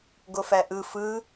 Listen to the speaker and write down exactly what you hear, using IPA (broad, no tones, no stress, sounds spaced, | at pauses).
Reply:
ɡ o f æ ʔ ɯ f ɯ